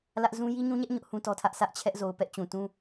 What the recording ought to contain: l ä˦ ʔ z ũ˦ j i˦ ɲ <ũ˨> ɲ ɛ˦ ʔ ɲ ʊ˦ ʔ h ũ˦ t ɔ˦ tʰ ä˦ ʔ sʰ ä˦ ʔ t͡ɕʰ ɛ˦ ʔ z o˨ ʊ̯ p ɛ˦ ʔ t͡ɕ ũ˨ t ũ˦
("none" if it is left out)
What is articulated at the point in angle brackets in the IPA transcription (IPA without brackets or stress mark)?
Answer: ũ˦